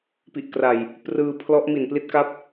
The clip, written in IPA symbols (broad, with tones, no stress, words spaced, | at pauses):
pi˨˩ʔkra˨˩j | prɯː˧ pʰlɔ˦˥ʔ mi˨˩npli˦˥t̚ka˦˥p̚